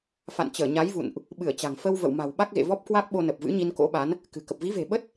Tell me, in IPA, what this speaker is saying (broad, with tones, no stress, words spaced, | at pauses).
fa̰˧˨nt͡ɕəː˧˩ɲa˨˦jvṵ˧˨nʔ | ɓɨ˧˩ə̯t͡ɕa̤˨˩ŋ fə˧w və̰˧˨wma̤˨˩wɓa˦˥k̚ɣḛ˧˨ vɔ˦˥p̚kwa˦˥k̚ɓo˧nə˨˩p̚ vɨ̰˧˥ɲi˧nko̰˧˥ɓa˨˦n | kɨ̤˨˩kə˨˩p̚ vi˨˦ve̤˨˩ɓə˦˥t̚